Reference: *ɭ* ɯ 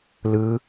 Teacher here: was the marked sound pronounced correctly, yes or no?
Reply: no